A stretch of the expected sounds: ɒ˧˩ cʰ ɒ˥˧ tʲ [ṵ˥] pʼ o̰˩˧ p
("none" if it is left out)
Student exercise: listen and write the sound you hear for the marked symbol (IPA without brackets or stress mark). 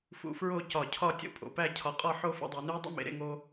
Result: o̰˥